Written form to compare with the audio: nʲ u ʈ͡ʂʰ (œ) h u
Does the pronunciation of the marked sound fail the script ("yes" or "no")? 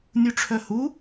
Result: no